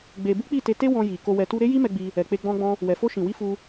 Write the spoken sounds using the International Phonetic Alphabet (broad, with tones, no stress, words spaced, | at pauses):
ɡ͡be˧ bu˦k͡pi˦˨ te˧te˦ wɔ̃˧ ji˨ ko˧wɛ˧tu˦ ɾe˦ji˦mɛ˧ ɡ͡bi˧ | ɛ˨k͡pe˧ɡ͡bɔ̃˧ɡ͡bɔ̃˧ | wɛ˨fo˧ʃĩ˨wi˧ fu˧